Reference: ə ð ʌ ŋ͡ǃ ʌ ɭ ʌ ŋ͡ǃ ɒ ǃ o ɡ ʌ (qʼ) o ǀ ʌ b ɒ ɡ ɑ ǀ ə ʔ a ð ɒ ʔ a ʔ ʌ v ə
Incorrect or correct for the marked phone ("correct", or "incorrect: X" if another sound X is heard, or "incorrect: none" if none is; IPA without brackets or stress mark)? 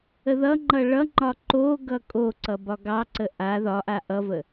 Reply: incorrect: kʼ